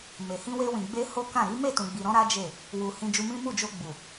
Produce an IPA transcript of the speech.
m e˨ h ĩ˧ w e˧ w ĩ˨ ɡ͡b e˧ h o˦ k ã˦˨ ɾ i˨˦ m e˦˨ t ũ˨ ɡ͡b i˨ ɾ ɔ̃˧ ɾ a˦ d͡ʒ e˦˨ | w u˨ h ĩ˧ d͡ʒ u˧ m ĩ˦ m u˦˨ d͡ʒ o˧ ɡ͡b u˨

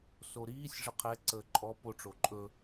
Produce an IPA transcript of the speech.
s o ɾ iː sʲ ʐ ə qʰ ɛ ǀ əː ǃʼ ɔ p o ʈ͡ʂ o ǃʼ ɵ

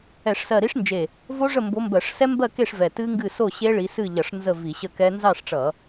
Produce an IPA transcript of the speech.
ɛ˧˩˧ ʂ s ɜ˧˩ ɾ i˦˥ ʂ n d͡ʒ e˧˩ | v o˦˥ ʐ ə˥˨ m b o˨˦ m b ɜ˧˩˧ ʂ s ɛ˦˥ m b ɜ˥˨ k e˥˨ ʂ v ɛ˧˩ t ɨ˦˥ ŋ ɡ ɨ˥˨ s o˥˨ ɕ e˦˥ ɭ i˨˦ s ɨ˥˨ ʎ ʌ˧˩˧ ʂ n z ə˥˨ v i˧˩˧ ɕ ə˥˨ k ɛ˦˥ n z ɑ˥˨ ʂ ʈ͡ʂ ʌ˧˩˧

